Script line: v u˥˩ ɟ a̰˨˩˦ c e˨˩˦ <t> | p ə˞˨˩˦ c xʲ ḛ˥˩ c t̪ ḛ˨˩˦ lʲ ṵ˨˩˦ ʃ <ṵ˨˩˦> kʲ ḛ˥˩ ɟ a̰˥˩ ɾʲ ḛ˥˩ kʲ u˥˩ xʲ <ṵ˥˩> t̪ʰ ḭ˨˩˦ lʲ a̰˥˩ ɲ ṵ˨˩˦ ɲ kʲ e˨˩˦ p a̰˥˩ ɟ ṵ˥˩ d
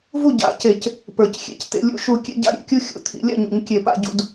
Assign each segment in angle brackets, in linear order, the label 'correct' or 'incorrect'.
incorrect: c, incorrect: u˨˩˦, incorrect: ṵ˨˩˦

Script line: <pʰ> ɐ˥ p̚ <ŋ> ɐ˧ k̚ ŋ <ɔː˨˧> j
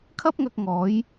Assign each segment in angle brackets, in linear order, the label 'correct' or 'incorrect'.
incorrect: kʰ, correct, incorrect: ɔː˨˥

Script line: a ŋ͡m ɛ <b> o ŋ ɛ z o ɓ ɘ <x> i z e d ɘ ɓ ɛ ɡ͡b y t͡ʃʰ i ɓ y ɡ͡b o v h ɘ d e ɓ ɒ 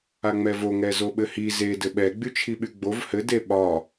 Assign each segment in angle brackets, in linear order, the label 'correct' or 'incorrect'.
incorrect: v, incorrect: h

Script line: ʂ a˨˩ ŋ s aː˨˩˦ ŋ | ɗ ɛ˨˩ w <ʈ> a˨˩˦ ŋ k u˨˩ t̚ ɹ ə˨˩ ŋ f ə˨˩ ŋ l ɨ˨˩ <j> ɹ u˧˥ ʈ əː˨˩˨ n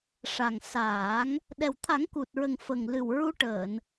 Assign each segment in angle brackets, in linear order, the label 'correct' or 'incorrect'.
incorrect: t̪ʰ, incorrect: w

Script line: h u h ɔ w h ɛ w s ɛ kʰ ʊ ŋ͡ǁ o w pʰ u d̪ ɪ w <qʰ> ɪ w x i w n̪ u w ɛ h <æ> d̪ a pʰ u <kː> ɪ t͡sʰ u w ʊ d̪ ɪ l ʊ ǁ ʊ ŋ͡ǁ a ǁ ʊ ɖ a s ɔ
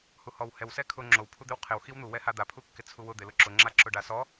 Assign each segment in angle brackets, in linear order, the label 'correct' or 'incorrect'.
correct, incorrect: a, correct

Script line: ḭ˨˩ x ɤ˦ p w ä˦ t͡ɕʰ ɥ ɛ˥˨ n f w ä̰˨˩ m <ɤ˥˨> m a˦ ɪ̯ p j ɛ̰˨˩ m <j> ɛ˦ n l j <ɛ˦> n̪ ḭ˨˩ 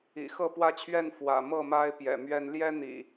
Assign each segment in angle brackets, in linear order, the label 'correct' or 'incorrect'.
correct, incorrect: ɥ, correct

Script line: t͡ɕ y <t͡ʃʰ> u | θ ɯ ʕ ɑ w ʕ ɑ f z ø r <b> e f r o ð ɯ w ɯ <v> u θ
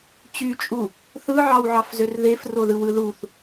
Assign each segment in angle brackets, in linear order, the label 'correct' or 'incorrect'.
incorrect: t͡ʃʼ, incorrect: ð, incorrect: ð

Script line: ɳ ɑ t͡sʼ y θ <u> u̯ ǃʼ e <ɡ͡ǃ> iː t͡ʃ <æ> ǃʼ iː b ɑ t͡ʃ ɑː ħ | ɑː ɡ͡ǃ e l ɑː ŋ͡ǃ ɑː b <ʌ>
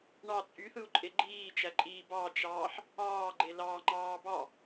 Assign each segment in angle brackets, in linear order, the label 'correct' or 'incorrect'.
incorrect: ɯ, correct, correct, incorrect: ɑ

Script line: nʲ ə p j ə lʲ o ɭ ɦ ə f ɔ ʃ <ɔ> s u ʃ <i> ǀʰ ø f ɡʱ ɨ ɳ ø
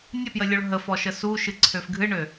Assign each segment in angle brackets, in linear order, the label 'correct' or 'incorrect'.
incorrect: ə, incorrect: ɨ

